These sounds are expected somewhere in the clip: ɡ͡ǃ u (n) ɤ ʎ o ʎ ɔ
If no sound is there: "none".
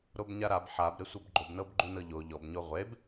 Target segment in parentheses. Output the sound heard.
n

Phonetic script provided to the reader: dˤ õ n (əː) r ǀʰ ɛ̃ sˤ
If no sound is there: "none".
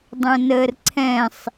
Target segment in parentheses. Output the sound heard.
əː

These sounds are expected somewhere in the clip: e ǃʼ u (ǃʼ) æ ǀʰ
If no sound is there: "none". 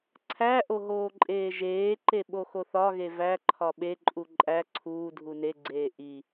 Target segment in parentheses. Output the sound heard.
ǃʼ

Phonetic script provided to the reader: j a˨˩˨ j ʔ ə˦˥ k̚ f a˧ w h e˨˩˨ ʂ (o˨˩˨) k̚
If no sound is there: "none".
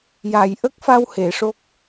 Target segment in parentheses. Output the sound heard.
o˦˥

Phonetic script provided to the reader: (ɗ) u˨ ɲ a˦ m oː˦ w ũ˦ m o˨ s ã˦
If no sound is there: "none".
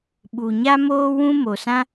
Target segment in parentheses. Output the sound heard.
ɓ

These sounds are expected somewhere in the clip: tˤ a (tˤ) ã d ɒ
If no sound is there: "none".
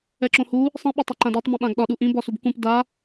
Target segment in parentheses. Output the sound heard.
ǃ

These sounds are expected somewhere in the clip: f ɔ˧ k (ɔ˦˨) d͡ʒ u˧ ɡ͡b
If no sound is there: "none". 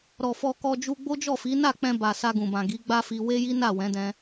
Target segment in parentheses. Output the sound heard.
ɔ˧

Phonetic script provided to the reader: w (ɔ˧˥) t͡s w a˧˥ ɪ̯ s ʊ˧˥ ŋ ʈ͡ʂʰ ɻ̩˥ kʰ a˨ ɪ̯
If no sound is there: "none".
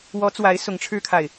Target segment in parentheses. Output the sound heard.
ɔ˧˥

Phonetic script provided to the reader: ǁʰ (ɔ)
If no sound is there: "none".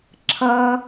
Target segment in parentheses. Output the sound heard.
ʌ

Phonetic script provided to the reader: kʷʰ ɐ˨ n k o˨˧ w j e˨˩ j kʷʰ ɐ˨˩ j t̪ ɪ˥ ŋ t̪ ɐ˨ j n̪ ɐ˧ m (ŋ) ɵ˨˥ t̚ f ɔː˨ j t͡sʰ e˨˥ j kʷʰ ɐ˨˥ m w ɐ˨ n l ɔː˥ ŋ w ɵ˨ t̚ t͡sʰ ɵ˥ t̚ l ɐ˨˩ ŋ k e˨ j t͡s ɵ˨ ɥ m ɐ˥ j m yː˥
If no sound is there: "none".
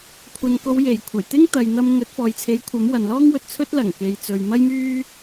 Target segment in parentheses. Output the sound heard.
ŋ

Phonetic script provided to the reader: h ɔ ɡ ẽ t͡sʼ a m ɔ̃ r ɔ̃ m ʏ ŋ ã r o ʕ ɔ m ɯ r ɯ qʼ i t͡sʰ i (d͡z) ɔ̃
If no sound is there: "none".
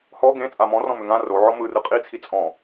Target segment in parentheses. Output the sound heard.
t͡sʼ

